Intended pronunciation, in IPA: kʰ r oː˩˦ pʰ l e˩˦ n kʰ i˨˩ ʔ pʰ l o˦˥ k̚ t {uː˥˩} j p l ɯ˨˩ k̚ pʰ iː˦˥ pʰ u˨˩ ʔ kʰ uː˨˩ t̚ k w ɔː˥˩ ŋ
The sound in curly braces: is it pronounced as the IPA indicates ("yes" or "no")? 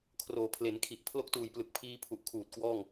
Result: no